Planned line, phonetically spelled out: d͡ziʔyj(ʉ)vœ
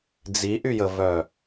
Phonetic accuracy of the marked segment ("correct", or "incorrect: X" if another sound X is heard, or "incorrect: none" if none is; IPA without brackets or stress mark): incorrect: ə